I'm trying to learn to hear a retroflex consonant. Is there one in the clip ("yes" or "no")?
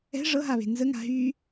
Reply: yes